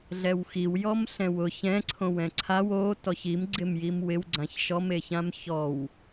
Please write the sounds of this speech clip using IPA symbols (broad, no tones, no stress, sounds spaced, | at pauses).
ɮ ɛ w x i w j ɔ m ɬ ɛ̃ w ʊ ç ɛ̃ ǀʰ õ w ɛ̃ ǀʰ a w o t ɔ ç i m ɡ͡ǀ ɪ m j i m w ɪ w ɡ͡ǀ ã ç ʃ ɔ m e ç ã m ç ɔ w